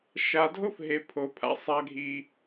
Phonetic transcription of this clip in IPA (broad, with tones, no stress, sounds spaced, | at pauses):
ʃ a˨ dʱ o˦ f ɦ e˨ pʰ o˨ pʰ a̰˨ sˤ a˦ ɡʱ i˦